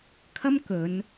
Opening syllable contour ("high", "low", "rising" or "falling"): high